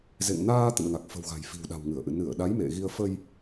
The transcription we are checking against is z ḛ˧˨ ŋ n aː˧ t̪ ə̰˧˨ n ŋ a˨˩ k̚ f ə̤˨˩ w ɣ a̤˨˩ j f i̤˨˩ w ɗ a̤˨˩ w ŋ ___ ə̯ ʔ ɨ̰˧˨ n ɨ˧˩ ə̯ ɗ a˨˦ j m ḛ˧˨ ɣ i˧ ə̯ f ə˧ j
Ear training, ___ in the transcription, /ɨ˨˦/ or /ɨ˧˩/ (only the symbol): ɨ˧˩